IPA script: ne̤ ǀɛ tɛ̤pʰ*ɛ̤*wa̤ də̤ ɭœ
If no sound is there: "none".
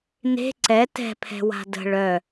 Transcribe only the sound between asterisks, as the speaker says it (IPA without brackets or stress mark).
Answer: ɛ̤